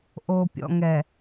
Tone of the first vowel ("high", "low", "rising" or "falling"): low